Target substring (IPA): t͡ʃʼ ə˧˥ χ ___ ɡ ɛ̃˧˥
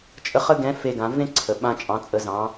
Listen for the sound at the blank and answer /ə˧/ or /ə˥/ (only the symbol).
ə˥